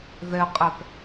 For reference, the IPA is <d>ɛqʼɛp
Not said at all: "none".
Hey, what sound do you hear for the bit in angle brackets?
ð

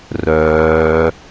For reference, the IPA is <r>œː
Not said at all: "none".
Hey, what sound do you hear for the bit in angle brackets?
r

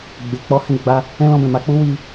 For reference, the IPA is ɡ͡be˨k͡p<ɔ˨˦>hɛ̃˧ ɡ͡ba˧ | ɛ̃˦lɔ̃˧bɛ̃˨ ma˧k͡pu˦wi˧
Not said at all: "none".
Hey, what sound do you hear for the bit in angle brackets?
ɔ˧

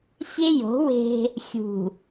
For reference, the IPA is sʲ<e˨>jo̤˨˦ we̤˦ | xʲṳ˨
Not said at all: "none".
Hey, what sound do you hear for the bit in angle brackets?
e˦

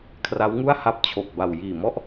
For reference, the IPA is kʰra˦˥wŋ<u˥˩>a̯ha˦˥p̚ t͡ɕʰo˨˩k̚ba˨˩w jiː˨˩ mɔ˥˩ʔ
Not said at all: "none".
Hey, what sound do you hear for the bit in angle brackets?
u˥˩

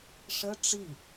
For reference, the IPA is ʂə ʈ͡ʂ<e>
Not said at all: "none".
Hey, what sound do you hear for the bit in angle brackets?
i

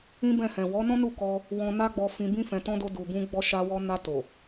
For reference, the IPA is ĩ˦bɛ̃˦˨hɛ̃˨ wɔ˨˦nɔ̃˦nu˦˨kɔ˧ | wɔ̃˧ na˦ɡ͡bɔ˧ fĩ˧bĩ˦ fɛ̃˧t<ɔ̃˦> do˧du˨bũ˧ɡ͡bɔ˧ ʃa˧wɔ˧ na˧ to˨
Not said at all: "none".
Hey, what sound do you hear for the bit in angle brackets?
ɔ̃˦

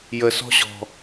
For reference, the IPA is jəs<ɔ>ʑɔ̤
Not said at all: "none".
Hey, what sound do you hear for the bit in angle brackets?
ɔ̤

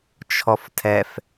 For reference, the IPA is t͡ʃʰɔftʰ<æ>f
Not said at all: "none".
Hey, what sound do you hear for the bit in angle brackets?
ɛ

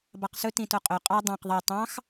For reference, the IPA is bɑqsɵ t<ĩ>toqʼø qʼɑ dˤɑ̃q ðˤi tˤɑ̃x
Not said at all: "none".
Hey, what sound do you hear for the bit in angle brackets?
ĩ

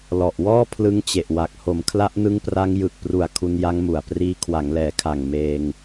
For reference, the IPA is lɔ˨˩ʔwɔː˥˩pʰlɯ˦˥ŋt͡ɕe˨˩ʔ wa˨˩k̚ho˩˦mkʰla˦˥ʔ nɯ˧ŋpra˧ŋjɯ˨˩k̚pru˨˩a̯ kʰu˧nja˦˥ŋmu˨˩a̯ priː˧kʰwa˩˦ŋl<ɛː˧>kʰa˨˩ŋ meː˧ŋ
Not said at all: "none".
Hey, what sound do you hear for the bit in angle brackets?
ɛː˩˦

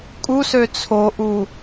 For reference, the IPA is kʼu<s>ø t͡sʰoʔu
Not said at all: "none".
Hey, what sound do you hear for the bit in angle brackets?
s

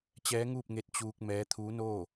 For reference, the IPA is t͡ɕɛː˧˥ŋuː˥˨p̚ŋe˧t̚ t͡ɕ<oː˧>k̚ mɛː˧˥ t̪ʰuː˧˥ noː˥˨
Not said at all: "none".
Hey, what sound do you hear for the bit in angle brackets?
uː˧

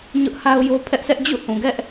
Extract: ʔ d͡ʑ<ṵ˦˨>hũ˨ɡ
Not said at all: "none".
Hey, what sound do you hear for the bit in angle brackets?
ṵ˦˨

